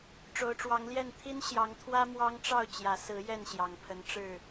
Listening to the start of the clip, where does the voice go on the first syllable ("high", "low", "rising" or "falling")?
rising